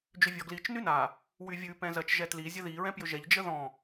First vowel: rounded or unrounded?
rounded